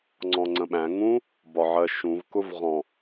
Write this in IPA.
ŋ͡ǀɔ̃ŋ͡ǀə̃ɓæ̃ ŋũ | bɒʕɜʃũv kʊvʁɔ̃

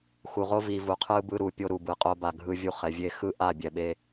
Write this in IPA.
xu˨ʁo˦vi˨ vu˨qʰɯ˦ bɯ˧ɾu˨pʲo˧ ɾu˨bɯ˨qʼo˧ba˨ ɡʱɯ˧vʲu˦˨χɛ˨ vʲe˧xɯ˦ ʔa˦˨bʲɛ˨ɓe˧

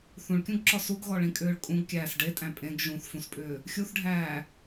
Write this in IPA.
θũɭkʲũɡǁɔ suɡɣɔɭĩkʼʏːɭ kʼũɡkʲæːs ɖetʼæ̃ pʼẽɡ ʒũθfũspʼʏː | xʲuθɖʱæː

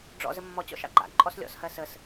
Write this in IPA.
ɖ͡ʐɔ̰ zəmːɔt͡ɕɔ̰ ʃɑ̰ɡ͡ǃa̰ǃʼɔs lʲɔ̰shɜ səs

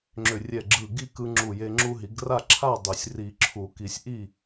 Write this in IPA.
ŋ͡ǁʏ˧˩rʲɛ˧˩ɡ͡ǁɯ˧˩ ɡi˥˨kɯ˧ŋ͡ǁu˧˩je˧ ŋ͡ǁu˧ɦi˨˩˦ɡra˥˨ ǁʰa˥˨dˤʏ˨˩˦sʲ ri˨˩˦ǁʰu˨˩˦ki˨˩˦sʲ ʔi˥˨

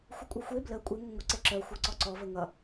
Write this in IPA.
xʷəkʷʼœxʷe blə kʷʼe ŋəŋʷə ǀeǁœ xʷə˞ǀɔǀɔ vəŋʌ

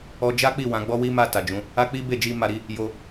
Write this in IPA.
ɔ˧d͡ʒa˦k͡pi˦˨ wã˨˦ɡ͡bɔ˦wi˦ma˦˨ ta˨d͡ʒũ˨˦ | a˦k͡pi˦ be˦˨d͡ʒi˧ ma˧ɾi˦ | jo˧

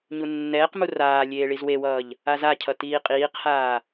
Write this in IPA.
ɲunːɛːqmu raː lʲeːɭizwewʌːʎ | azacʰʌ tiːqʼiːqhaː

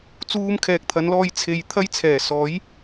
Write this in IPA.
t͡suː˥m kʰɛː˨k̚t̪ʰɐ˨˧nlɔː˧j t͡sʰe˨j t̪ʰɐ˥jt͡sʰɛː˨˩ sɔː˨˥j

